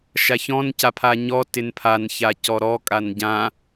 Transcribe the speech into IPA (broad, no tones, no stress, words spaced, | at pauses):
ʃaçɔ̃nca pʰaɲɔ tɪnpʰança cɔɾɔ kʼanɟã